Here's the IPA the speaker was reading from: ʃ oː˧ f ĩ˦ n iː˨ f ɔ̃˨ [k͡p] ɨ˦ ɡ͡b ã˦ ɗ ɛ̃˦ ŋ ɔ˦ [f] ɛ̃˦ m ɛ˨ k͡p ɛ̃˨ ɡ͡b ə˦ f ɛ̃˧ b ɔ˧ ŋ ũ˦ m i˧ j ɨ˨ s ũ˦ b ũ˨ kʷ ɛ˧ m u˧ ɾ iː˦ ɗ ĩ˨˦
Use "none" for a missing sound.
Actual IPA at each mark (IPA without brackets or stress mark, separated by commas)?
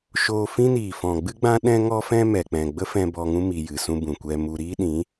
ɡ͡b, f